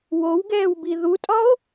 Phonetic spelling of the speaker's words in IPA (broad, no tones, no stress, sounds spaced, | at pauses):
w o w ɡ ɛː w b i ð u tʼ ɒ o̯